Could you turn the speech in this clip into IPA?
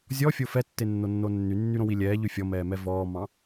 zʲ ɔ fʲ o f ɛ tː e nː o nː o nː y nː y ɾ õ w i lʲ ɛː ʎ ʉ fʲ ɔ m ɛː m ɛ v ɔː m ɑ̃

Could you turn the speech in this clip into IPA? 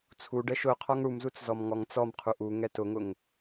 t͡sʰ u ɖ ɛ ʃ ʊ qʰ ɔ ŋ ɽ u m z u t͡s z ɔ m ŋ ɔ ŋ t͡s ɔ m qʰ u ʔ u ŋ ɛ t ʊ ŋ ʊ ŋ

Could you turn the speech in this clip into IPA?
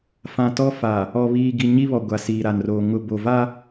f ã˨ t ɔ˦ f a˨ | ɔ˨ β iː˨ ɡ i˨ ɲ i˦ β ɔ˨ ɡʷ a˨ s iː˨ ɾ a˨ n r oː˨ ŋ ʊ˨ b o˨ v a˦

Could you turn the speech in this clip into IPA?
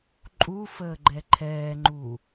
ǃʼ u f əː ɡ͡ǃ ɛ ǃʰ ɛː ŋ͡ǃ uː

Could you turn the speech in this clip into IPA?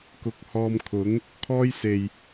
k ʊ˧ k̚ h ɔː˧ m kʰ ʊ˨˥ ŋ | kʰ ɔː˥ j s e˨ j

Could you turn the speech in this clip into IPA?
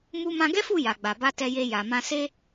m u˦ m ã˧ ɡ ɛ˦ f u˦˨ j a˨ ɡ͡b a˨ b a˧ t ɛ˧ j e˧ j a˨ m ã˧ s e˦

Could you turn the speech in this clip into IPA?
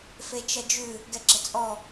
f e t͡ʃ ɐ d͡ʒ ʉ | ɡ ɛ ɡ͡ǁ ə t͡sʼ ɔ

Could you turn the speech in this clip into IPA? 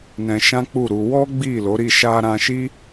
n ɛ̃˧ ʃ ã˦ k͡p u˦˨ ɾ u˧ w ɔ˦ ɡ͡b i˦˨ l o˨˦ ɾ i˦˨ ʃ a˧ ɾ ã˧ ʃ i˦

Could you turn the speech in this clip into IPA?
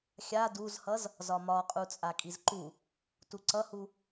xʲ a d u z h ʌ z | z ɒ m ɒ qʼ u t͡sʼ a kʼ i z ǃ u | t u ǀ ʌ h u

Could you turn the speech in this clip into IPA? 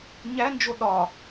ɲ æ n d͡ʒ o ɗ ɒ

